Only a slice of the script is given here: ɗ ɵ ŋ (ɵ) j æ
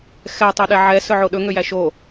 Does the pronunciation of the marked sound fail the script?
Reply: yes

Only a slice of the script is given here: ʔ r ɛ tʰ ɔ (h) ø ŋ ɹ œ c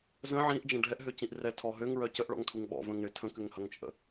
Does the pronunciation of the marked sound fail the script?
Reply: yes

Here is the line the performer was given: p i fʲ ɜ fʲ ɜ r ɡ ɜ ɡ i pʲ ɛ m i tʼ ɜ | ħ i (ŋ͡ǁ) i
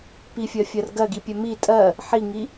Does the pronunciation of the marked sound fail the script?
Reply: yes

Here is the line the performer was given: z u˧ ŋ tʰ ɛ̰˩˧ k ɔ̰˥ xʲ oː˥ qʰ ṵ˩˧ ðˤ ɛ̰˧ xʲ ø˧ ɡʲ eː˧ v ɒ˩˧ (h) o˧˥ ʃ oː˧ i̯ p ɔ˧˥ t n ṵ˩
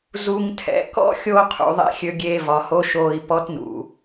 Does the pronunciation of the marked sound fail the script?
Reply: no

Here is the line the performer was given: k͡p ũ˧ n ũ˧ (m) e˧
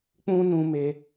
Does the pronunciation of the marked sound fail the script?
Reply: no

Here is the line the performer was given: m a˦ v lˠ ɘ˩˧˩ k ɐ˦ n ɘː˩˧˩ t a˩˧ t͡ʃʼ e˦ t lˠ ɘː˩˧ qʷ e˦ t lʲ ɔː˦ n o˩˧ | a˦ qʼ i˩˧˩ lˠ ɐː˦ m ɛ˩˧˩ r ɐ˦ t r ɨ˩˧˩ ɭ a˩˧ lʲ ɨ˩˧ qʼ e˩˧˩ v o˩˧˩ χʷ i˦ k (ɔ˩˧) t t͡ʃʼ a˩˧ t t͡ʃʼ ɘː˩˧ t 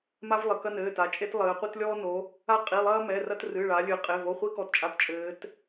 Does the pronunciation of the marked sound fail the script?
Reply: no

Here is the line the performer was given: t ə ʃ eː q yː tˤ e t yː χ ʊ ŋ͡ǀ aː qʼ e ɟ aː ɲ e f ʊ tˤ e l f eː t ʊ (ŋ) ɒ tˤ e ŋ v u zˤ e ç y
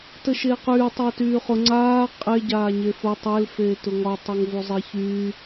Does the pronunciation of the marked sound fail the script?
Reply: no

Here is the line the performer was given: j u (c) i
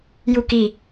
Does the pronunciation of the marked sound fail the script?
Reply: yes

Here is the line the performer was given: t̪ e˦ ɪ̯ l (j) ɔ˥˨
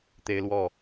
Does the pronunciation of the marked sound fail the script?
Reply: yes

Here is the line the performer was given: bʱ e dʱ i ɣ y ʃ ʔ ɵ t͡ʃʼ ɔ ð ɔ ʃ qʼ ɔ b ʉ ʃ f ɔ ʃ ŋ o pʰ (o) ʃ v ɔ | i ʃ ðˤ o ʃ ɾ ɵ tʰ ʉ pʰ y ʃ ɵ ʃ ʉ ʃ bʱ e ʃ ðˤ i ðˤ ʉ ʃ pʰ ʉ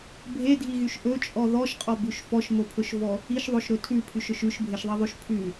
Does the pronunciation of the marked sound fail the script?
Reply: yes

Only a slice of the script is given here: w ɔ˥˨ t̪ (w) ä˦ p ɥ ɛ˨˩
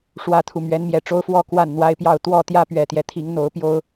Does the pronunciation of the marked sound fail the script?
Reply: yes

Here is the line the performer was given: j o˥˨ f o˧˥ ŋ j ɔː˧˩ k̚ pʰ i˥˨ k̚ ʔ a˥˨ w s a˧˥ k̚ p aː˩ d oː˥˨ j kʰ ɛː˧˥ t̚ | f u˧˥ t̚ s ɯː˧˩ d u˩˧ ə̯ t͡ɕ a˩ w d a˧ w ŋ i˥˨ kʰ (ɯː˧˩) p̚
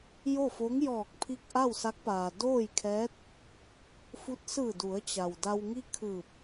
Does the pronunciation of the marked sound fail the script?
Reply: no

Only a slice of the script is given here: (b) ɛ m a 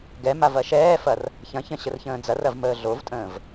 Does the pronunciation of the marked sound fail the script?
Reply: yes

